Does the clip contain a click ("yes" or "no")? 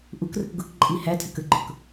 yes